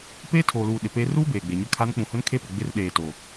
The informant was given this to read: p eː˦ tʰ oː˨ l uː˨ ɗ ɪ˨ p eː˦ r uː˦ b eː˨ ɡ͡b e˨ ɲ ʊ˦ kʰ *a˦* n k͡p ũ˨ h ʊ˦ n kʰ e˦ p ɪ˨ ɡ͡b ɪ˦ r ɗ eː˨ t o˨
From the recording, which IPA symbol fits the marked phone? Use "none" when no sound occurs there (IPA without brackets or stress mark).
a˦